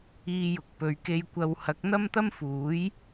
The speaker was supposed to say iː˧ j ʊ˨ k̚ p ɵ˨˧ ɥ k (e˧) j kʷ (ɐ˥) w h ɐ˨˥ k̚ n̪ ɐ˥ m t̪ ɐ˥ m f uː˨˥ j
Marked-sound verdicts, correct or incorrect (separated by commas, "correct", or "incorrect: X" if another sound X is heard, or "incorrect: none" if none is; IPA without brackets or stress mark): correct, incorrect: ɐ˧